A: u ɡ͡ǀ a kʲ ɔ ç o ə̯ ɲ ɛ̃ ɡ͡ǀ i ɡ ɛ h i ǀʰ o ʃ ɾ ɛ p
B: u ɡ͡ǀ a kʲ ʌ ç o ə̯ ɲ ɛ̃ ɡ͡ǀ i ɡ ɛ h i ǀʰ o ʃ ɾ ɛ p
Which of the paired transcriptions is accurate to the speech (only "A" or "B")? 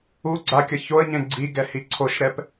B